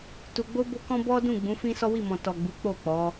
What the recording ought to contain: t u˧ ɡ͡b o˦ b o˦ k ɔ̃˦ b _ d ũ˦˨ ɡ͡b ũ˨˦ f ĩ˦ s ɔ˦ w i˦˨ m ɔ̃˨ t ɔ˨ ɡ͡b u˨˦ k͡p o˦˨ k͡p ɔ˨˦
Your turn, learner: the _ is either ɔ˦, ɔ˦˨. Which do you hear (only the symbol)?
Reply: ɔ˦